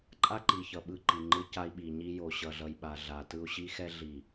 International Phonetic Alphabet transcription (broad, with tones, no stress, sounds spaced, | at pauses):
ǃʼ a˦ ǃ i˨ ç ʌ˨ ɓ ɯ˦ ǃ i˨ ŋ͡ǃ ɯ˦ c a˦ i̯ ɓ i˨ ɲ i˦ j o˨ ɕ ʌ˨ ɮ ʌ˨ j ɓ a˨ ɮ a˨ t ɯ˦ u̯ ɕ i˦ x ɛ˦ ɮ i˨